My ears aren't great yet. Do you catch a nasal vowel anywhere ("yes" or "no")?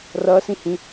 yes